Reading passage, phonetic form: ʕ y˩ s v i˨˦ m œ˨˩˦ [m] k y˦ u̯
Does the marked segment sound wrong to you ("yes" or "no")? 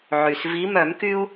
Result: no